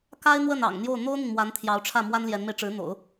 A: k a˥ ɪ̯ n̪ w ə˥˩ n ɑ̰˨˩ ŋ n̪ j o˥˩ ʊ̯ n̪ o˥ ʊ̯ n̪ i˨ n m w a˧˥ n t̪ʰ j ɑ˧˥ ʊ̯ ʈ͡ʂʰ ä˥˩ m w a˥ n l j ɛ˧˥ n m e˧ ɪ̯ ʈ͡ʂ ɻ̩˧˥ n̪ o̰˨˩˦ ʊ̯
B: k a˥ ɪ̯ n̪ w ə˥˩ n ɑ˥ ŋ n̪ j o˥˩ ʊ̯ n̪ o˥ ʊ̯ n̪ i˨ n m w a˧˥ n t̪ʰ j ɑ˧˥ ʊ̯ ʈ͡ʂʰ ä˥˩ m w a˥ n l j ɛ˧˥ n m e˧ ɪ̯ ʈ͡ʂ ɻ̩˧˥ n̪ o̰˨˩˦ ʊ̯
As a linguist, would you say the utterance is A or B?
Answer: A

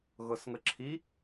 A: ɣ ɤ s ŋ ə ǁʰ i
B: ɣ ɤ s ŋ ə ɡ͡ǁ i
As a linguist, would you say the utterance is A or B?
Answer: A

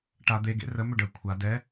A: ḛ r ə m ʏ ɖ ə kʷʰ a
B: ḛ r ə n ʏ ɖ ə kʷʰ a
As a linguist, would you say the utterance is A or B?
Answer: A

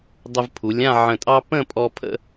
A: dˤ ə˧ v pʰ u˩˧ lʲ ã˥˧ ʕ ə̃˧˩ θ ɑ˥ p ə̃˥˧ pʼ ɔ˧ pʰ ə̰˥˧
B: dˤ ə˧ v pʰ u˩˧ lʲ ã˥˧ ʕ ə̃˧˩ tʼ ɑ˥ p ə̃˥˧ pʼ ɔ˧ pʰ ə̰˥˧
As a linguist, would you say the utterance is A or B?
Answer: B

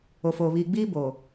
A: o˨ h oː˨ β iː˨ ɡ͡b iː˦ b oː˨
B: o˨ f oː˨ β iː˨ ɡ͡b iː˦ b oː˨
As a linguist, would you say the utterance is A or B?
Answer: B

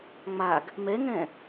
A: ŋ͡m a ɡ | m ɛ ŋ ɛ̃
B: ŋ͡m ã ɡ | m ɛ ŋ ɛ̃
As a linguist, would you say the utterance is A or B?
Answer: A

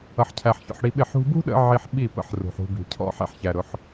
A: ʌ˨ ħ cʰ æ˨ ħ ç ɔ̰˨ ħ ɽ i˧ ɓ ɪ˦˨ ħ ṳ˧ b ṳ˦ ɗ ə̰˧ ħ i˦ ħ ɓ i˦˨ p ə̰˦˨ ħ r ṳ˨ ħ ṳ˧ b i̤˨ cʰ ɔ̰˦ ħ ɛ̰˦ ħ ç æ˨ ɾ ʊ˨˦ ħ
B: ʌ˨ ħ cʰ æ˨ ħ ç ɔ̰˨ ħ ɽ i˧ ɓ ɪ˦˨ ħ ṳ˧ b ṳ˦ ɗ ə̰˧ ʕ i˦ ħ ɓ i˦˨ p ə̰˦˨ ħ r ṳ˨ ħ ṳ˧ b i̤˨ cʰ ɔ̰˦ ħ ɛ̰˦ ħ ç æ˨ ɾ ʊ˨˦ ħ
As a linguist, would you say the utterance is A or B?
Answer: B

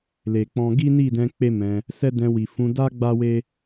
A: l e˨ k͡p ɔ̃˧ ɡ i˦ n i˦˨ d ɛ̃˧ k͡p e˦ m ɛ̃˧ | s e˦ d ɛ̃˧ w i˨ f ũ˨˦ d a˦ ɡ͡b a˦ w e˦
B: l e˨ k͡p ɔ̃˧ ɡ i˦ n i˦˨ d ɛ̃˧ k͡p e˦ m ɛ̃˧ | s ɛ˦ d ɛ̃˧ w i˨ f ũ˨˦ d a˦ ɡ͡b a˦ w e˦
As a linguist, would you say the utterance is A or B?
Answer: B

